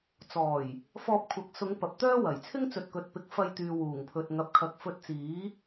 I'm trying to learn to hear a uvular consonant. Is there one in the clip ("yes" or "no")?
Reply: no